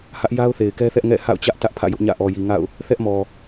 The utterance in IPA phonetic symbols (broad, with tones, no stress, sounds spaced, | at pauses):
h ä˦ ʔ j a˦ ʊ̯ θ e˨ ɪ̯ k ɛ˦ θ ɛ˦ ʔ ŋ ɛ̰˦˨ h a̰˦˨ ʊ̯ t͡ɕ ä˦ ʔ t ä˦ ʔ pʰ ä̰˦˨ j ʊ˦ ʔ ɲ ä̰˦˨ ʔ ɔ˨ j i˨ ŋ a̰˦˨ ʊ̯ | θ ɛ˦ ʔ m ɔ˨